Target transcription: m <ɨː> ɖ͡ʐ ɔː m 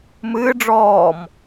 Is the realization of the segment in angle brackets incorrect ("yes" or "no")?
no